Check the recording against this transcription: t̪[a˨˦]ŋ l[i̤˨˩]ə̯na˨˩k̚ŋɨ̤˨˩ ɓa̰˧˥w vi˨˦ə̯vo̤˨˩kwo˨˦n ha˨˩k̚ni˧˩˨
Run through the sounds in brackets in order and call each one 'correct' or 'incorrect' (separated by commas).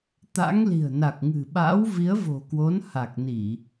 incorrect, correct